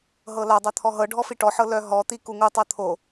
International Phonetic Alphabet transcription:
ɦ ɤ l a dˤ œ t̪ʰ ɔ ɦ ɤ ɖʱ ɔ f i ʈ ɔ ħ ɤ l œ ɦ ɔ t̪ i k u ŋ u tˤ ɤ t̪ʰ o

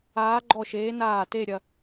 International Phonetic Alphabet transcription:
aː˧˥ ɡ͡ǃ ɔ˦˨ ʃ eː˧˥ n aː˦˨ t e˦˨ ɾʲ ɐ˦˨

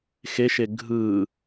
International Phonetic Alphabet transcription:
x e ʃ e ɡʱ ɯ

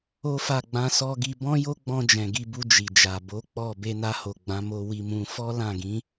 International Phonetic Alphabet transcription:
o˦ f a˦˨ ɡ͡b ã˧ s ɔ˧ ɡ i˧ b ɔ̃˦ j o˦ ɡ͡b ɔ̃˧ d͡ʒ ɛ̃˨ ɡ i˧ b u˧ d͡ʒ i˨ d͡ʒ a˨ b o˨˦ k͡p ɔ˦˨ b e˧ n a˧ h o˨ ɡ͡b ã˨˦ m o˧ w i˧ m ũ˧ f ɔ˦ l ã˦˨ ɡ ĩ˨˦

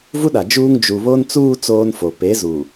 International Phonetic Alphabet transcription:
v u˦ ɗ a˨ d͡ʒ uː˦ ŋ d͡ʒ u˨ β o˦ n t͡s uː˦ t͡s oː˦ n f o˨ p e˨˦ z u˨

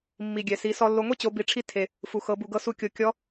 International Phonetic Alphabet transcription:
mː i˩ ɡʲ ɛ˩ s i˩˧ s ɔ˧ lː o˧ ŋʷ i˥ t͡ɕ o˩˧ b i˩˧ ʈ͡ʂʰ i˧ tʰ e˩ | f u˩ x ɤ˩˧ b u˩ ɡ ɤ˧ s u˧ kʲ o˩˧ kʲ ɔ˧˥

